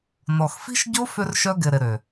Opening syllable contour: low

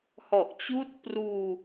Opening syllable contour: low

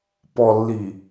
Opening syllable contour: low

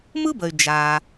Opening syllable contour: high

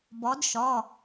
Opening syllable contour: rising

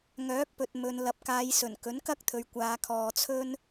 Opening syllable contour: rising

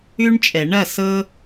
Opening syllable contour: high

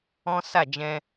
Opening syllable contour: high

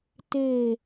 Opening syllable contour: falling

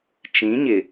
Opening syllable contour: rising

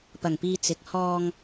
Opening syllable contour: low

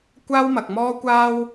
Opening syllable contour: high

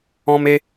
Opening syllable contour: high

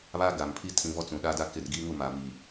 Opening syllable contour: high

